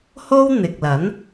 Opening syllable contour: high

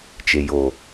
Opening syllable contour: low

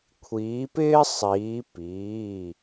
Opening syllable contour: rising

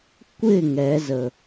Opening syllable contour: falling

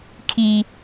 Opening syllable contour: low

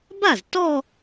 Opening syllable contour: falling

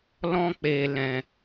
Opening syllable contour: high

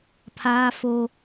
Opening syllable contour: high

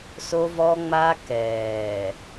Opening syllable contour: high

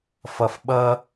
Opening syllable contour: low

